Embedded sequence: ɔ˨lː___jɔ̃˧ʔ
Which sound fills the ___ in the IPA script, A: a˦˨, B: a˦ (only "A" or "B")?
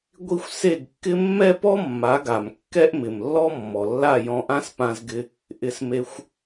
A